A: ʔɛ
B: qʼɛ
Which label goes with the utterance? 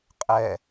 B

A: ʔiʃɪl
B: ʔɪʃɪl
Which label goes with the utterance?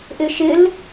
B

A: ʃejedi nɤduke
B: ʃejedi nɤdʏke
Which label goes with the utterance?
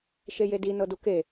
A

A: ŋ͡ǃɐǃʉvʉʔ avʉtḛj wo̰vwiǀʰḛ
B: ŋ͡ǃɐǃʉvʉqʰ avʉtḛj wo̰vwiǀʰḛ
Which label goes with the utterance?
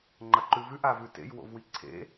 A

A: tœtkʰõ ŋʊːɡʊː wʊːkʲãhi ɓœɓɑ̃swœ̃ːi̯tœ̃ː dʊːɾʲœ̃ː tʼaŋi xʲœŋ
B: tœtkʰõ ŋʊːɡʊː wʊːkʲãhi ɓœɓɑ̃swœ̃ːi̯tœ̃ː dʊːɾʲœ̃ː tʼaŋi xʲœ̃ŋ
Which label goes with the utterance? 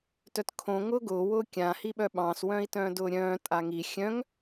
B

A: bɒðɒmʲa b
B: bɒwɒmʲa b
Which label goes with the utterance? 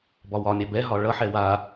B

